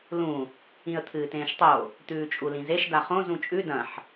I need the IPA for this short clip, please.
lũ | ĩə̯t̪ʰɨːtẽːʃtˤo | t̪ʉːt͡ʃʼulĩzeʃ daχõ zũt͡ʃʼʉ dɐ̃ħ

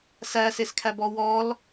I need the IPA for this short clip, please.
sæseskʰæbɔ wɔl

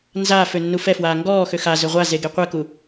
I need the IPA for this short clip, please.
nzaː fønːufɛfwaː ŋɡɔː xøxazø ʁʷaze ɡeqʷɛku

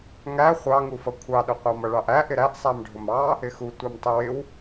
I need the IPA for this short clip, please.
ŋæ χʷɑŋufʌ kʷʰɑɗʊ qʷɑmʌɭɑʔæ ʔɪɾæʔ sˤæmɖʱʊmɑ | ɪxu tʷɑmtˤʊwɪw

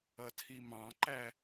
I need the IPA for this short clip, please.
ʌtʰimɑ̃ǃæ

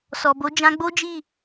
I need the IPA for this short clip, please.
sɔ˨bo˨˦ d͡ʒã˧ɡ͡bo˦d͡ʒi˦˨

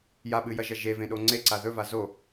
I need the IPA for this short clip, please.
jaɓɨjɐʒɐ ʒevẽɗo ŋ͡ǀeǀa ðɵva zo

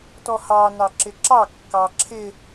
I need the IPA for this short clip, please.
tɔhɑ nɑǁɪǁɑ kːɑǁʰɪ

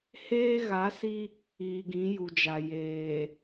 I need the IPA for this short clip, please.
heː˦ɣa˨˦si˦ | iː˨ɡĩ˨˦ju˨d͡ʒa˨ jeː˨

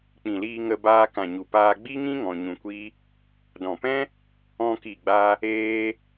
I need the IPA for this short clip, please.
k͡pĩ˨liː˧ŋə˧ baː˧kã˨ɲu˨paː˧ ɡ͡bi˦ŋĩ˦ ŋɔ̃˧ɲũ˧kʷi˦ | dɔ̃˨pɛ̃˦ | ɔ̃˧ki˨ɡ͡ba˧ | eː˦

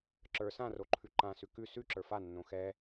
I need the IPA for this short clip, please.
ǁə˞ sãroǃʰʉ ǃãsʉ kʉ sʉǁə˞ fanːõ xɛ

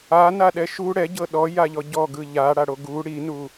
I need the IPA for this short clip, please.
anaɗɛ ʃu ɽɛɟɤ ɗɔjaʎɔ ɟɔɡɯ ʎaɽaɽo ɡu ɽinu

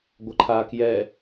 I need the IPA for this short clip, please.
ɡʷʌǃʰa kjɛ

